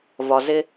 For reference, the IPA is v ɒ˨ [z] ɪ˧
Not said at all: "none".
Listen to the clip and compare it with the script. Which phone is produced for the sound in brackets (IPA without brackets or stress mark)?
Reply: z